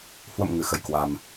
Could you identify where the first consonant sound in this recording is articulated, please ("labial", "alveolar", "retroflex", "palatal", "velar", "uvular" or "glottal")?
glottal